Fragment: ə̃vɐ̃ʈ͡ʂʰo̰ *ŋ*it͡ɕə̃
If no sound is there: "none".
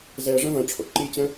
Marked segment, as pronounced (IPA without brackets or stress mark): ǃ